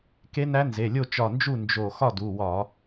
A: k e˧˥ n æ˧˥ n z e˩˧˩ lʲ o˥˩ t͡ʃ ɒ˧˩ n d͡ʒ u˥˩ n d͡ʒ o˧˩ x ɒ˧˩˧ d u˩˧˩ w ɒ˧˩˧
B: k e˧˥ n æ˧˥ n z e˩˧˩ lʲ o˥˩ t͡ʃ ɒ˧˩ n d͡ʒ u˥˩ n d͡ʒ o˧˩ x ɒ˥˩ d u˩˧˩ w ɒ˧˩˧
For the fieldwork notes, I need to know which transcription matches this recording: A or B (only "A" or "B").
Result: B